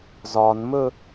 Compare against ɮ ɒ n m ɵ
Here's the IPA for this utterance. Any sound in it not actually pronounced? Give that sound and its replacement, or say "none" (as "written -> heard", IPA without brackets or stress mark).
ɮ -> z